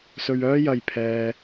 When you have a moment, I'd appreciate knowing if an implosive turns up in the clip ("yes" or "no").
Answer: no